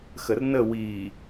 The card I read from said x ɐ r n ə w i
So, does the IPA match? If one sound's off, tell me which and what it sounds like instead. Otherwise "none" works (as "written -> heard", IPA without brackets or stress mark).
ɐ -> ə